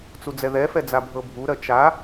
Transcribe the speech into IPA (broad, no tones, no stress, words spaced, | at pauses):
t͡sud͡zɛðɛfɛ d͡zabʱɤbʱuɾɜ t͡ʃa